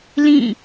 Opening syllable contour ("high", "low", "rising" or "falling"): falling